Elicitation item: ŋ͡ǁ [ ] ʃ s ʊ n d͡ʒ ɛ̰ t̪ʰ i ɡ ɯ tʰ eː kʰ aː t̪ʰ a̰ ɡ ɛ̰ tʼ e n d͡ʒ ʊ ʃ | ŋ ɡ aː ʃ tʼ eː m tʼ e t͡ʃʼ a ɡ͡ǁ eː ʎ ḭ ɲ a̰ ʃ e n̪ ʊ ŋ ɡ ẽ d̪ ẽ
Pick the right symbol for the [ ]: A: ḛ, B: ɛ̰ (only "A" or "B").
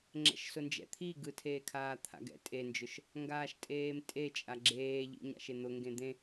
B